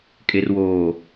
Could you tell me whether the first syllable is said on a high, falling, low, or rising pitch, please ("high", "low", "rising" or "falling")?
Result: low